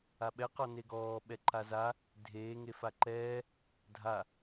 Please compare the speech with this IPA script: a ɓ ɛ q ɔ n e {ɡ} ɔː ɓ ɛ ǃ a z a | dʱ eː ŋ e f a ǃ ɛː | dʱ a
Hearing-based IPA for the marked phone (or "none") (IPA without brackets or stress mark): ɡ